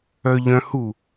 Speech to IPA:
œʎœ̃hu

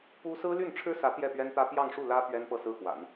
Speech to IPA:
pu˥ sɹ̩˥ly˥˩nʈ͡ʂʰɻ̩˥sä˧˥ t̪jɛ˥˩pɥɛ˥nt̪ä˥ pjɑ˥˧ŋʂu˥˩ lä˥ pɥɛ˥n pɤ˥˩sɹ̩˥xwa̰˨˩˦n

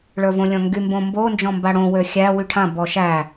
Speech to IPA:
ɭə˞võlʲɔ̃ŋɡy mbõmbo nd͡ʒɔ̃mbaɽõ wøxʲæ wyʈʰã bɔʃæ

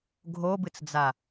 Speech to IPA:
ɡʱobɨt͡sd͡za

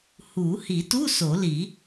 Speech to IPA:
hu˨˩˦ hi˨˩˦tu˧˥˧ so˨˩˦li˨˩˦

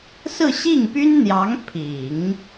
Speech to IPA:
sɹ̩˥˧ɕi˥˩ŋpy˥nn̪jɑ˧˥ŋ pʰi˨˩˦ŋ

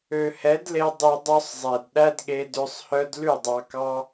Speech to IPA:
ø˨hɛ˨˦dle˧ dˤy˧dˤœ˦sˤzˤɛ˨d ɗæ˦dɠe˧dø˧sˤhœ˦d lʉ˦˨dˤɑ˧kɑ˦

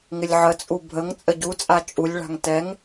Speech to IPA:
ŋɪlʲʕət͡sʼu bʱəŋ t͡sʼəɟut͡sʼa t͡ʃʼulʲɭa̤ŋ tɛŋ

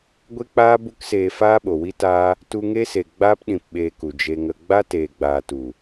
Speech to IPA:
ɡʷe˦k͡paː˦ bu˦kseː˧ faː˦ɓo˨wi˦taː˦ | tu˧ŋe˦se˨ɡ͡baː˦p ɗĩ˧pɓeː˧ku˨ d͡ʒe˧ŋə˧ ɡ͡ba˦teː˨ɡ͡baː˨tu˨

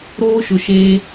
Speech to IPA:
ɾoː˦ʃʊ˨ʃeː˦

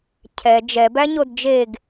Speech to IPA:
cʰɛ d͡ʒɛbæɲod d͡ʒeɡ

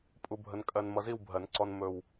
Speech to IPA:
pʼu˧bʱə˧n kʼɜ˧n mʌ˧zi˥˧wbʱɜ˨˩˦nǀɔ˧n mɵ˨˩w

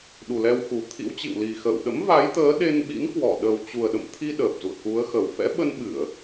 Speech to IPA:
ɗu˨˩lɛ˧wxu˨˩ t̪ʰḭ˧˥wt͡ɕḭ˧˨wli˨˩xə̰ː˧˨w ɗə̰˧˥mva˨˦jt̪əː˨˦ ɗe˧nɓḭ˧˥nkwɔ˧˩ ɗə˨˩wt͡ɕu˨˩ə̯ɗə̰˧˨mt̪ʰi˧ ɗəː˨˩p̚zṵ˧˨ə̯ku˨˦ə̯xə˨˩w fɛ̰˧˥ɓə˧nɓɨ˧˩˨ə̯

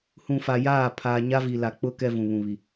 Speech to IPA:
hũ˨ fa˨jaː˦˨ pʰaː˨ɲa˦vi˨ la˨k͡pʊ˦ kɛ˦vũ˨βũ˨βi˨

